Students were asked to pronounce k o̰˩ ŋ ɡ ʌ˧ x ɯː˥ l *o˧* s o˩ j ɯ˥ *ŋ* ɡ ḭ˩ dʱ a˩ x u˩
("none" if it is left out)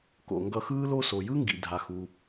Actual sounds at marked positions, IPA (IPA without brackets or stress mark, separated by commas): o˥, ŋ